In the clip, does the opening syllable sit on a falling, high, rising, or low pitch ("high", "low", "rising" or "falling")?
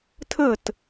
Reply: falling